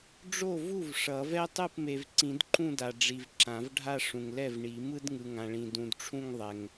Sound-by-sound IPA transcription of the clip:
ɖ͡ʐ o˥˩ v u˥˩ v ʂ ʌ˨˩˦ v ɛ˥ tˤ ɯ˥˩ p m e˨ v ǀ ĩ˨˩˦ d ǃ ũ˥˧ d a˨ ɖ͡ʐ i˨ v ǁ ã˨˩˦ v ɖʱ a˥˧ ʂ ũ˨ ŋ l ɛ˥˩ v ɳ i˨˩˦ m ɯ˥ d ŋ ɯ˨ ŋ ã˨ ɭ ĩ˨ d ũ˨ d ʈ͡ʂʰ ũ˥˧ ŋ ðˤ ɛ˨ ŋ

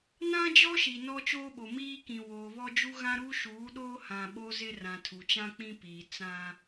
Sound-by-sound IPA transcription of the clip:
n ã˦ d͡ʒ ɔ˦ ʃ i˨ n ɔ˦ t͡ʃ oː˦ ɓ o˨ m iː˦ k ĩ˨ w oː˨ β ɔ˦ d͡ʒ u˦ ɣ ã˦ ɾ u˦ ʃ uː˨˦ ɗ oː˦ h ã˨ ɓ o˦ z ɪ˦ r ã˨ tʰ u˨ t͡ʃ ã˦ k͡p ĩ˦ p iː˨ t͡s ã˦

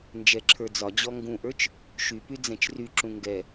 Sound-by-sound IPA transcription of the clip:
n d͡ʒ ɛ ǁʰ ə˞ d͡z ɒ d͡ʑ ɔ ŋ ɡ ũ ʔ ə˞ t͡ʃ | ʃ y p y d͡z ɛ̃ t͡ʃ r y ǁ ũ ŋ ɡ ɛ

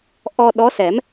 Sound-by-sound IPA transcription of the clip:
ʔ ɔ˧ ɗ ɔ˧˥ s ɛ˨˩˦ m

